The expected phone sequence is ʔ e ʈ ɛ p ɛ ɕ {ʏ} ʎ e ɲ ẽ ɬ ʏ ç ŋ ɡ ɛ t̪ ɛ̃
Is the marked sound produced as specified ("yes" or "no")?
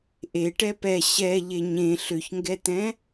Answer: no